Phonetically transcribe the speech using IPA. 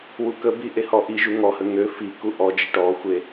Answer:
w u k ə b i ʔ e h ɔ ʔ i ʒ u ŋ ɔ h ə ŋ ø f i k u ʔ ɔ d͡ʒ ə ʈ ɔ xʷ e

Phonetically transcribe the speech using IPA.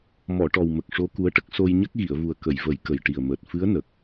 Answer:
m ɔ˨˩˨ ʈ ɔ˨˩ w m ə˨˩ k̚ ʂ o˧˥ k u˧˥ ə̯ ʈ ə˦˥ k̚ s o˧ j ɲ ə˦˥ k̚ ɣ i˨˩˨ ə̯ v u˨˩ ə̯ k ə˨˩˨ j v ə˨˩˦ j k ə˨˩ j ʈ i˨˩ ə̯ m əː˨˩ t̚ f ɨ˧˥ ə̯ n ə˨˩ k̚

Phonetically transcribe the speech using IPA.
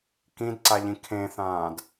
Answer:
k ĩ d ǀ a ʎ ĩ kʰ ẽ θ ãː d

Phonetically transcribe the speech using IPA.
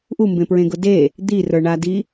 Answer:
ʔ u m b ẽ p ɹ ẽ ɡ ʊ d e | d̪ i r ə˞ ɳ a d i

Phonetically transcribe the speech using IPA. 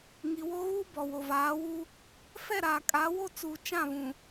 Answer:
ŋ i˨ w o˦ ɣ uː˦ b ɔ˨ w o˨ v aː˨˦ w u˦ | f ɛ˦˨ ɾ aː˨ kʼ a˨˦ w o˦ t͡s uː˨ t͡ʃ ã˦˨ β ũ˨

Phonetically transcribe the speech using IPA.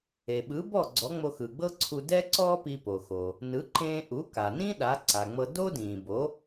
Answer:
e˩ ɓ ɯ˩˥ b ɔ˥˩ ɡ͡ǀ ɔ˩˥ ŋ͡m o˧ x ɯ˩ ɡ͡b ɤ˥ ǀʰ u˧ d ɛ˥ ǀ ɔː˥ p i˧ p o˩ x o˩ | n ɯ˩˥ ǃ ẽː˧ ʔ u˩˥ k a˩ n ĩ˥ ɗ a˩˥ ǀ a˩ ŋ͡m ɤ˧ d o˥ d ĩː˩ b o˩˥

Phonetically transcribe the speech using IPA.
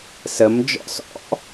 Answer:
s ə m d͡ʒ ɔ̰ s ɔ̰

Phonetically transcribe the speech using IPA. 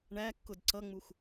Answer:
ɳ æ kː ʊ d ǀ ʌ ŋ͡m u x

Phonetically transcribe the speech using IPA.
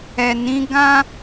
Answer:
ɛ˨ n ĩ˨˦ ɡ ã˦

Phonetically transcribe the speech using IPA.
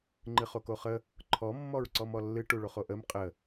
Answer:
ŋ͡ǃ ɨ χ o k o χ ə | ǃʰ ɔ mː ɔ ɹ ǀ ɔ m ɔ lː ɨ ʈ u ɭ o χ o ʔ ə m qʼ ə

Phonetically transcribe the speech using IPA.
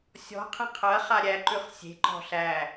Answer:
sʲ ɔ̤ qʰ ẽ qʰ ɐ χ a ɾʲ æ ǃ ʉ χ sʲ e̤ ǃ ɔ̤ ɬ æ

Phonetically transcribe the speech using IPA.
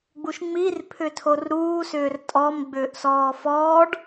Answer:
ɡ͡b u ʃ ŋ͡m i r pʰ ʏ tʰ o r ɾ uː s ʏː r tʼ ɔ m ɡ͡b ʏː ʔ s ɔː f ɔː ɖ

